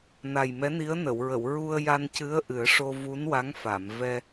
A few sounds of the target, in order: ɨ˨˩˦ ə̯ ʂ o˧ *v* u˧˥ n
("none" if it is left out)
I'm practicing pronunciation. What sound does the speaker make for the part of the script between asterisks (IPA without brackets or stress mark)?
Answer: v